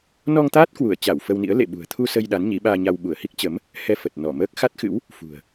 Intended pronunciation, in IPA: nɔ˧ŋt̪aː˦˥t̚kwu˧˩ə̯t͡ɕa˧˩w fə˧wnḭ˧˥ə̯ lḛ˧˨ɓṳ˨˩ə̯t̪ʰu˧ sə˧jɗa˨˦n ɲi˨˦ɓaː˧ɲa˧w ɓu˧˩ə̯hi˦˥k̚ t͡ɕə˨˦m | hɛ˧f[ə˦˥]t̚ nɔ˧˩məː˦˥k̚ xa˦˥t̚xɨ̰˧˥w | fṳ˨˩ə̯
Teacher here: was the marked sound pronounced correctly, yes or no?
no